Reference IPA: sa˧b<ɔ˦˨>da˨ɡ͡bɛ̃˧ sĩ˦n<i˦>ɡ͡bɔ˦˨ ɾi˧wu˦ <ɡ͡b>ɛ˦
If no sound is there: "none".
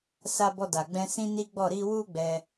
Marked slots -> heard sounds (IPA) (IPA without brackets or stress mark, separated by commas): ɔ˧, i˦, ɡ͡b